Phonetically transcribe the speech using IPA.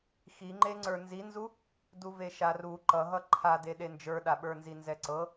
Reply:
xiŋ͡ǃe ŋ͡ǀə˞nzinzu | duveʃaru ǃʌɦʌ ǃʰade ɗend͡ʒə˞ɗaɓə˞ nzinzɛǀɤ

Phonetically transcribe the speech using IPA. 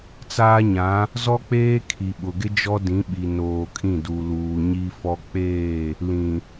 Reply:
t͡saː˦ɲã˨˦ | zɔ˦k͡peː˦ kʰi˨ɓʊ˨ɡɪ˦ d͡ʒɔ˦dĩ˨˦ ɓi˨noː˨kʼĩ˦˨du˨ luː˨ɲi˦fɔ˦ k͡peː˦˨ | lĩ˨

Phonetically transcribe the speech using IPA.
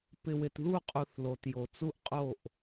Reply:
pɪ˨wɪ˨tðu˦˨qʼu˨θ lo˨tjo˨t͡su˦ʔqʼo˦˨ʔ

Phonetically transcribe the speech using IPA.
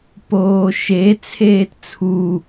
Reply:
poːʃe t͡sʰeːtt͡sʰu

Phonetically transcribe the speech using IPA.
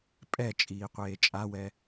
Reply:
pʼɛt͡ʃʼiːqʷeː t͡ʃʼawɛ

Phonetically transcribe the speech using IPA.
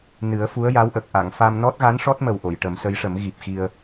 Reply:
nɨ˨˩˦ə̯fu˧˥ə̯ja˧˥wʔə˨˩k̚ ʔa˨˩˨ŋfa˧m nɔ˦˥t̚ɣa˧˥n ʂɔ˦˥t̚mə˨˩w ʔo˨˩˨jʈə˨˩˦msə˧˥jʂə˨˩˦m ɣi˨˩p̚xi˧ə̯

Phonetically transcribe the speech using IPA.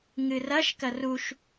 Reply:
ŋɨrɐʃ kɐruʃ

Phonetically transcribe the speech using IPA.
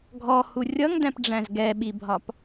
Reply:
ɡʱɔhu rʲʌŋdæ̃pɖ͡ʐæ̃z ɡɛɓibʱɒp

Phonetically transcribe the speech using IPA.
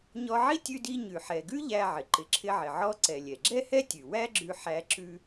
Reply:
ɲɔ˧ʕi˥ tʲʉ˧di˧ ɲʉ˩ħɛ˩ɡʉ˥ ʎæ˧ʕɪ˩ ǃɪ˩ǁʰɪ˧ʕɪ˩ ʕɔ˧ǀɛ˩ lʲɛ˩ɡ͡ǁɛ˥hɛ˥tʲʉ˩ wæ˥ɡ͡ǁʉ˧ ħæ˧ ǁʉ˧

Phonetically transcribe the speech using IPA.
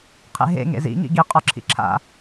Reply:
qʰḛɦḛ ŋḛzḭ ŋḭɡi qʼɒǁʰḭǁʰa̰

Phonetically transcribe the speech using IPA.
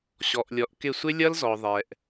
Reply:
ɕɔ˨ʔlʲɔ˨˦ʔkɪ˦˨ sʷɪ˦lʲʌ˦lzɔ˨ ðˤɛ˨ʔ

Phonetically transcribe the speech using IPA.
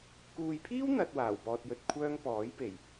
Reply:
kuː˨jpʰiː˥w n̪ɐ˨t̚ waː˨˩wpɔː˧t̚jɵ˧t̚kʷʰœː˥ŋ pɔː˨˥jpe˨˩j

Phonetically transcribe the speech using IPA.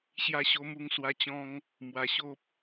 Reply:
ɕja˧ɕo˧mu˧ŋ swa˧ t͡ɕɔ̃˧ŋ | mwa˧ɕo˦p̚

